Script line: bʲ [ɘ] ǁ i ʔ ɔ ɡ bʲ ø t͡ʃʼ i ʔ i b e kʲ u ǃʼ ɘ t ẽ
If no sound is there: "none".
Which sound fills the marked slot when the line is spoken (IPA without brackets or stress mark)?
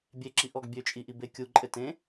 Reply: e